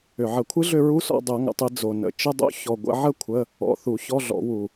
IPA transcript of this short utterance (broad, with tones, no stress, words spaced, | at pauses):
ʏ˨˩ʕə˨˩˦ kʷʰɨ˦˥ɮʏ˥˨ɹu˦˥sɔ̰˥˨ dˤo˨˩˦ŋə̰˨˩tˤɨ˨˩˦ d͡zo˨˩nə̰˨˩ t͡ʃə˧˥˧dˤo̰˦˥ çɔ˨˩ɡʷə̰˨˩˦ʕə˥˨ kʷʰə˧˥˧ | ɔ̰˧˥˧ θu˨˩˦ çɔ˧˥˧ɮɔ̰˨˩˦wu˨˩